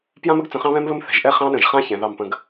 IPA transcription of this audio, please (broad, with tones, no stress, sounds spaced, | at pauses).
p j ã˥ m ə˥ ɡ t͡s ə̃˧ χ ɑ̃˥ β ɛ̃˥ m β ɘ˥ m θ ɛ̤˩˧ ʒ ʔ ɛ˥ χ ɑ̃˥ ɗ ə̃˧˩ ʒ χ ã˥ ç ɛ̃˩˧ ð ɑ˧˩ m p ə̃˧ ɡ